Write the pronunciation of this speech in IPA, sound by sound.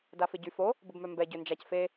d a f ɪ ɟ y f o | b ə b m œ m b ɛ ɟ ø n d͡ʒ a c f e

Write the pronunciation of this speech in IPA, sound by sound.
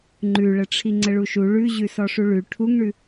ŋ͡ǃ ʉ ɭ ə ʈ͡ʂʰ i ŋ͡ǀ ə ɭ u ʃ u ɭ ʉ ʑ ʉ s ɔ ʂ u ɭ ʉ ʈʰ u ŋ ɳ ʉ

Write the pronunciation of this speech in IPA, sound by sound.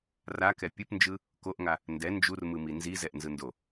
r a k ɛ pʲ ɯ p n d͡ʒ ɯ | k o ʔ ŋ a | n d ɛ n d͡ʒ u r m ɯ m i n z i z ɛ ʔ n z ɯ n d o

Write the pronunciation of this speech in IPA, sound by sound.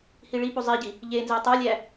h i ɭ i p u zˤ i ɟ i | ʎ e n z e tˤ o lʲ æ

